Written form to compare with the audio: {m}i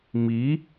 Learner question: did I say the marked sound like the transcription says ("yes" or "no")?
yes